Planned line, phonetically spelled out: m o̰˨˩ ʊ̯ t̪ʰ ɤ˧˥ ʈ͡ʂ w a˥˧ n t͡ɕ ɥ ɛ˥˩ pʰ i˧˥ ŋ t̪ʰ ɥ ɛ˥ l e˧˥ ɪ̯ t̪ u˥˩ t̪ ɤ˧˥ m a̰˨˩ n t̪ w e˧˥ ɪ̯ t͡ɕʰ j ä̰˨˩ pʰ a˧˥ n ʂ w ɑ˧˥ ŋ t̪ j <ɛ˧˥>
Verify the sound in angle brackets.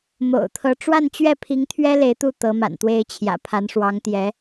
correct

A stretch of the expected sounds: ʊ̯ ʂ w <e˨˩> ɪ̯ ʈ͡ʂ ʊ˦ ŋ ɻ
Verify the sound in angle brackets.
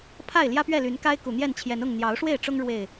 incorrect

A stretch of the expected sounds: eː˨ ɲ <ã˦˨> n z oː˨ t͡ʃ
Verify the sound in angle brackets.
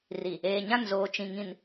correct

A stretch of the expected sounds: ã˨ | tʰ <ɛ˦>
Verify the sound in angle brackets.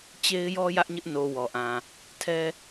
correct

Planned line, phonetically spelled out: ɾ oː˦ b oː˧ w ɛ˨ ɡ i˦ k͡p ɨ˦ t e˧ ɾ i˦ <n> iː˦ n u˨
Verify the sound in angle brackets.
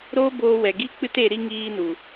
incorrect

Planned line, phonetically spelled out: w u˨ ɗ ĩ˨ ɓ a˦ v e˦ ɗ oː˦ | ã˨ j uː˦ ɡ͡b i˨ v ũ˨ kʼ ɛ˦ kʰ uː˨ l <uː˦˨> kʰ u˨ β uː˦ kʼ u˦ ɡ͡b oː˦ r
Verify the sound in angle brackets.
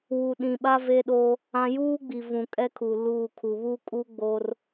correct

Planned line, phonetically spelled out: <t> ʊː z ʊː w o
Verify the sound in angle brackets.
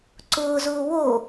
incorrect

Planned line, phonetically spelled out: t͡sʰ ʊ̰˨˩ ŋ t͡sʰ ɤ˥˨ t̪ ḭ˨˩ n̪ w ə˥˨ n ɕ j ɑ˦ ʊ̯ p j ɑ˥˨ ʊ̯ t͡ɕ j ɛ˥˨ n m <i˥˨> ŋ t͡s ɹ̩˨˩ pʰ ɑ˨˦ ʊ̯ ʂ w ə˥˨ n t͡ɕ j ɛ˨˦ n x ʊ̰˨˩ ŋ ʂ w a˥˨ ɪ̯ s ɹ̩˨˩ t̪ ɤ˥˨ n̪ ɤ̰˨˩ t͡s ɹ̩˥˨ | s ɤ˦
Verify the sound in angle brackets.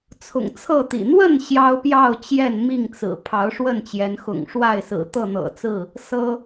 correct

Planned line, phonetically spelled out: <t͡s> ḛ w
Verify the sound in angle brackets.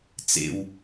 correct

